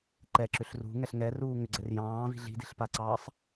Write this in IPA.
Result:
ǃɛǁʏɬ rṳŋɛɬ ŋɛruː ŋʏɡ͡ǀɛr jɑ̃ːvi̤ ɮi̤di̤ɬpaǀɑːsˤ

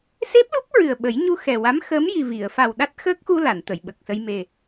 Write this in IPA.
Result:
se˦˥p̚lu˦˥p̚ ɹɨ˨˩ə̯ɓə˨˩˦j ɲu˧xɛ˨˩wa˧˥m xəː˧˥mji˨˩vi˨˩˨ə̯ fa˨˩wɗa˦˥t̚xəː˦˥k̚xu˧ la˨˩˨nt̪ə˨˩˨jɓə˨˩k̚sə˧j me˨˩

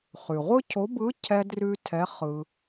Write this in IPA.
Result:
χʉ˩ ʁʷɯ˥cʰo˧˥ bɯ˧˥cʰɛ˧drʉ˧ tʰɛ˧˥χɯ˧

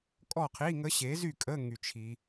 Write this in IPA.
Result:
kʼɔ˥˨qʰi˧˥˧ŋə˦˥ ɕe˨˥zy˥˨kʼə˧˥˧ ŋy˨t͡ʃʰi˨

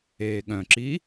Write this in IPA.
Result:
eːɠœ̃ǁi

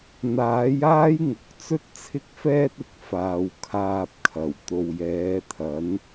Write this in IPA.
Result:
n̪aː˨˥jaː˥jŋʊ˨˥k̚ t͡sɵ˥t̚t͡sʰɪ˥k̚fɛː˥t̚ ɪ˧k̚ faː˨w kʰaː˧p̚kʰɐ˨˩w t̪o˨wjɛː˨˧t̪ʰɐ˨˥n

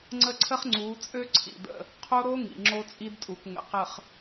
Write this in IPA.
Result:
ŋ͡ǀə˦ǀʰə˦χŋ͡ǀuː˨˦t͡sʼø˦ ǀʰḭ˨də̰˦˨ | qʰo˦ɾo˦ ŋḭ˨ŋ͡ǁo˦t͡sʼi˦dtʼu˨k ŋə̰˨ qə˨χ

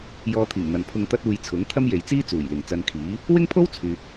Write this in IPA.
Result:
jɔː˧t̪ʰiː˨˩ŋ n̪ɐ˨npʰʊ˧ŋ t̪ɐ˥t̚uː˧jt͡sʰʊ˨˥ŋ t̪ʰɐ˥mje˨jt͡siː˥ t͡suː˨˩jlɪ˨˩ŋ t͡sɐ˧nkʰiː˨˥ | wɪ˥ŋpʰo˥w t͡sʰyː˨k̚

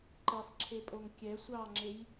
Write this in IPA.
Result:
ǃesˤǁʰepʼoŋ kʲɛ sʷɑŋ͡ǁej

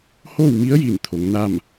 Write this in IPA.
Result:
hoː˥˨wmi˧˥ə̯ji˧˩n t̪ʰo˩˧ŋna˥˨m

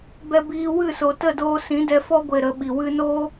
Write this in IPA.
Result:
bɛ˦biː˦ wɨ˦˨so˨ tə˦˨doː˧sĩ˨˦ dɛ˧fɔ˦ɡʷe˨ ɾə˨˦ɓi˨ wɨ˧noː˦

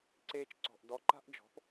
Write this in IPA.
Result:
ǀeː˧t͡ʃǀɔ̤˨ʔ dɔ˨˦ǃa̤˦ʔd͡ʒɔ̤˨˦p

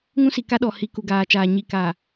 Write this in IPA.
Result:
ŋũ˦si˨ka˦ɗɔ˨ hi˨ ku˨ɡaː˨t͡ʃaː˨ ɲi˨ka˨

